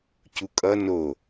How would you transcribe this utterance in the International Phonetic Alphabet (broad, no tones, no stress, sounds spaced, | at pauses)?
c u kʼ ʌ n o